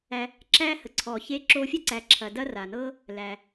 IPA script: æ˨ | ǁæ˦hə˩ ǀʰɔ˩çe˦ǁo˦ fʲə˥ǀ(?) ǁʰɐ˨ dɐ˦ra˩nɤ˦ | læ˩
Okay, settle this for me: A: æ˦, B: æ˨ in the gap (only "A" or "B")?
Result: B